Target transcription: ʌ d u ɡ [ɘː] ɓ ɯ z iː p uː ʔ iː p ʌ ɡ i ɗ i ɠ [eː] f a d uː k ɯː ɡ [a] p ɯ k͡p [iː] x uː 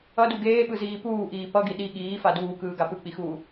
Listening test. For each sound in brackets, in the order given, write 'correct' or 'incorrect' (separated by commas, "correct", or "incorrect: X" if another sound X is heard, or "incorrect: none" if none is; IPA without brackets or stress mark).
incorrect: eː, incorrect: iː, correct, incorrect: i